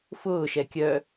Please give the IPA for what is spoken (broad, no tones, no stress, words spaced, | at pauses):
fʊːʃɛ kʲœ